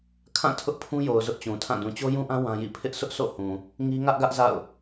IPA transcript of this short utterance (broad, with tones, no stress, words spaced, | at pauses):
kʰã˦˨ tʰʊ˦ʔpʰũ˦jo˨ʊ̯ zʊ˦ʔt͡ɕũ˨tʰã˦˨ dũ˨t͡ɕo˦jũ˦ʔã˦ wã˦jḭ˦˨ pʰɪ˦ʔ sʊ˦ʔsʰo̰˦˨hũ˨ | ŋi˦ ŋä˦ʔɡä˦ʔ za̰˦˨ʊ̯